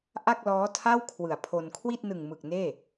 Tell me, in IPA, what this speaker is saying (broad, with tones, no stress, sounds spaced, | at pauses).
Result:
ʔ a˥˩ k̚ l ɔː˦˥ tʰ a˥˩ w kʰ w ɯ˨˩ a̯ pʰ o˧ n kʰ w i˥˩ t̚ n ɯ˨˩ ŋ m ɯ˨˩ k̚ n eː˥˩